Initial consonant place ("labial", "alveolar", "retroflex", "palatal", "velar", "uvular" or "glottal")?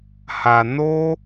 glottal